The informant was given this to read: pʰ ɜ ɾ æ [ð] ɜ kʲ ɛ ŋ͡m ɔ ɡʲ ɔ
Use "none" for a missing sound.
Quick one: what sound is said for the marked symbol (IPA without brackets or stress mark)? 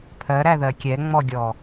ð